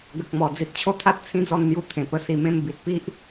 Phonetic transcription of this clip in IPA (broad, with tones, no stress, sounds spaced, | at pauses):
ɡ ə˨ k̚ m ɔ˨˩ d͡z i˨ t̚ t͡ɕʰ o˦ t̪ʰ a˦ t̚ t͡sʰ ĩ˦ d͡z ɔ˥˧ n n̪ j u˧ t̪ʰ ẽ˨˩ p ə˧ s i˧ m ẽ˦ m b i˨ t̚ p i˦ ʔ